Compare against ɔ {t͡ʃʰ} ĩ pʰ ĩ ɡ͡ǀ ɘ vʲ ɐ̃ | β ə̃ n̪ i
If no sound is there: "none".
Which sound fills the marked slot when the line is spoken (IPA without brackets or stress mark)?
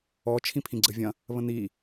t͡ʃʰ